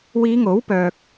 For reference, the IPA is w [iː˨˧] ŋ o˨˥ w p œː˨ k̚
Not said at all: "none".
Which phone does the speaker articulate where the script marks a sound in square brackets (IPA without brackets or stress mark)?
iː˨˧